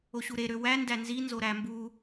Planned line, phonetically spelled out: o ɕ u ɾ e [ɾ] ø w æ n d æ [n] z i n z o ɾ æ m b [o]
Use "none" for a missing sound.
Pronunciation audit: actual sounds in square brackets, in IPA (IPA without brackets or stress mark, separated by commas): ɾ, n, u